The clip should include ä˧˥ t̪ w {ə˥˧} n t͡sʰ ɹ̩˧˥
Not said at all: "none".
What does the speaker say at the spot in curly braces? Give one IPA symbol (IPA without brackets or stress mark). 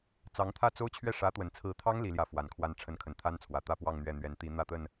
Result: ə˨˩